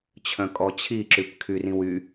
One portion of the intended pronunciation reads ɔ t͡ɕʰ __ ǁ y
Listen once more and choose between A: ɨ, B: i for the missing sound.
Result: B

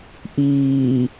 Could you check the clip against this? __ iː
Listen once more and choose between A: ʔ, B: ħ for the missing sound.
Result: A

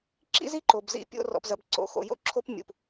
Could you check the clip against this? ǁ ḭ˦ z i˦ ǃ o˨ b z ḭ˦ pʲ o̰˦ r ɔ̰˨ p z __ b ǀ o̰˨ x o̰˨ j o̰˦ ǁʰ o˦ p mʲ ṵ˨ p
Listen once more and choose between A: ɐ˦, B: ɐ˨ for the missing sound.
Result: B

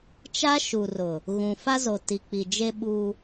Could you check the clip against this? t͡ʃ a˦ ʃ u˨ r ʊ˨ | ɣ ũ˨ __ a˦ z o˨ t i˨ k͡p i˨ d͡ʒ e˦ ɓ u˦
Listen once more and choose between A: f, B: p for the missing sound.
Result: A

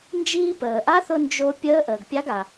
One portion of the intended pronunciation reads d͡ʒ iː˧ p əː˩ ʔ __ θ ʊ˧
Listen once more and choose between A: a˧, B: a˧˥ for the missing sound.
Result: B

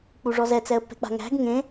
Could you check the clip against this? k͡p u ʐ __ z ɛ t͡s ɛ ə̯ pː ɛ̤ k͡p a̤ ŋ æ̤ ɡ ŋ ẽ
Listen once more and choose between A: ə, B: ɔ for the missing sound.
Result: B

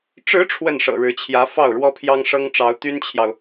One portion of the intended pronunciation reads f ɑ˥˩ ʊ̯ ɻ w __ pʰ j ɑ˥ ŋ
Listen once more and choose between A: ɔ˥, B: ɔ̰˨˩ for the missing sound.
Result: A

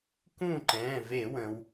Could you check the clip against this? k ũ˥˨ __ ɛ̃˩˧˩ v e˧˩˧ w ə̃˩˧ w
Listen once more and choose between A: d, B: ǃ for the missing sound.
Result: B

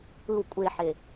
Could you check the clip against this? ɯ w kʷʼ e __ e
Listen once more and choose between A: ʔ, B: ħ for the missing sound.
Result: B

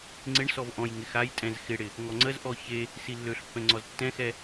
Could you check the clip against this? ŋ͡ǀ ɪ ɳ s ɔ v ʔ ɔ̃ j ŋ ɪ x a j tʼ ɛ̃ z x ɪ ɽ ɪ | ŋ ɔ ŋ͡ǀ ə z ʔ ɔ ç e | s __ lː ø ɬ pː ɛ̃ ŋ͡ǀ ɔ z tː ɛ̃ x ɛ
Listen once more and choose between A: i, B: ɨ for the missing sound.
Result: A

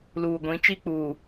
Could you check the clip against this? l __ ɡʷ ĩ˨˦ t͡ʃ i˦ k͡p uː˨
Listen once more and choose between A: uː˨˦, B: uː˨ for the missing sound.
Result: B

